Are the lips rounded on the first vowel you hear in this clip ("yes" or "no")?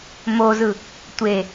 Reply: yes